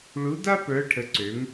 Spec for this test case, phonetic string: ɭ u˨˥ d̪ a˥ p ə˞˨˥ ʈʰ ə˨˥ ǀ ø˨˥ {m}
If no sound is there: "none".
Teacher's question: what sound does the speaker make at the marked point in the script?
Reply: m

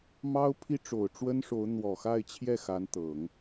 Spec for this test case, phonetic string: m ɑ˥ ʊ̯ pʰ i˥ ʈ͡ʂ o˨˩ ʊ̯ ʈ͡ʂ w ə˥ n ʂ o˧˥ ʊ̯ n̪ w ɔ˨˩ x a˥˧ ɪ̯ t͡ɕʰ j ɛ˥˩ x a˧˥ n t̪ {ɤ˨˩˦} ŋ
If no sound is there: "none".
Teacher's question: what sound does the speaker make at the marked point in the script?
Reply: ɤ˨˩˦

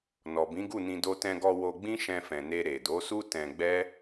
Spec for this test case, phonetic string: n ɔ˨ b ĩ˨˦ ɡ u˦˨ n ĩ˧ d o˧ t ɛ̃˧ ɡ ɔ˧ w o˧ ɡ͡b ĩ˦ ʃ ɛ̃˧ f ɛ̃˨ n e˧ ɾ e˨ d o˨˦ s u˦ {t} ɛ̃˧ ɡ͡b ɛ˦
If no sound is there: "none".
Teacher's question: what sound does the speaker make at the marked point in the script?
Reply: t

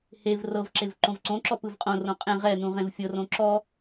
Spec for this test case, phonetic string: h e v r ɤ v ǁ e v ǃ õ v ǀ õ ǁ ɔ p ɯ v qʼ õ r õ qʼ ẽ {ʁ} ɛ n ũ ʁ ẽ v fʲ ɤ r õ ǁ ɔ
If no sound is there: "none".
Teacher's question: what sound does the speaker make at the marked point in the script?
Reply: ʁ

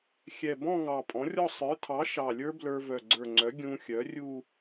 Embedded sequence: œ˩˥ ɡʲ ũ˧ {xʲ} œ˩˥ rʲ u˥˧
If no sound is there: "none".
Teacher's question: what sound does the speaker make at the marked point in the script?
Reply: xʲ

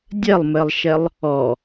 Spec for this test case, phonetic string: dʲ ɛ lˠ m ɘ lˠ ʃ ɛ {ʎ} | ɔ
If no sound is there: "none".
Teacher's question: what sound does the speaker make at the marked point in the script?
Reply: lˠ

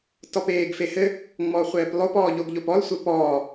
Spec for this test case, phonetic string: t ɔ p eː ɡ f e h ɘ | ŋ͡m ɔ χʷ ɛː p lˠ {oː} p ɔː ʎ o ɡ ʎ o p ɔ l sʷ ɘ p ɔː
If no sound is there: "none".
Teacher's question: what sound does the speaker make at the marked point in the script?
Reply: o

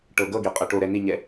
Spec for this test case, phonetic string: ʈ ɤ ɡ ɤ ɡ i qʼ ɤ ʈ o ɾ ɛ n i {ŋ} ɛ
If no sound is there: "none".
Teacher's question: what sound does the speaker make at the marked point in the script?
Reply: ɲ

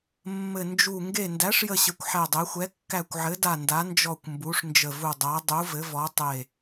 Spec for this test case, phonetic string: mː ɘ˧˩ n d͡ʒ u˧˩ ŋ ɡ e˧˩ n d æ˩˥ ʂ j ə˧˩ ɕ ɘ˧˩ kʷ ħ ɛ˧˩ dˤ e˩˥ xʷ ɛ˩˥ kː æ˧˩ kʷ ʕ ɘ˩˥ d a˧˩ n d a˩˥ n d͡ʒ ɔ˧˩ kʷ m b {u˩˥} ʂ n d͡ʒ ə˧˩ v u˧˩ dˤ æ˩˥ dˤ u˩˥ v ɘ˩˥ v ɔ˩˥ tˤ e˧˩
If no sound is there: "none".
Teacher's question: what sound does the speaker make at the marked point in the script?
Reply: u˩˥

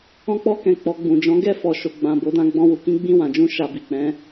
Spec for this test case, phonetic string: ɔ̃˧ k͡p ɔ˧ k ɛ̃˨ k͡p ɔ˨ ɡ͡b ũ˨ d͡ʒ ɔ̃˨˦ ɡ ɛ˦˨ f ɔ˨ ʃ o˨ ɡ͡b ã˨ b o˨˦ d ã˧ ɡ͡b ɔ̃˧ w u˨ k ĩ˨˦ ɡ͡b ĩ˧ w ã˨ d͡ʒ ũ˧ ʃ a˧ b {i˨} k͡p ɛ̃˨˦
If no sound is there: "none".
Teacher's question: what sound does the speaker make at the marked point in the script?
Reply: i˨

